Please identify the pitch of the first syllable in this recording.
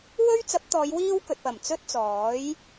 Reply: high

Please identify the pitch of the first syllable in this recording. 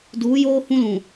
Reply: rising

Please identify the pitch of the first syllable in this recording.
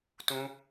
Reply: high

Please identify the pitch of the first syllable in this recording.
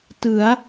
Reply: rising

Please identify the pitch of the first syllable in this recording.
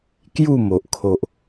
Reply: falling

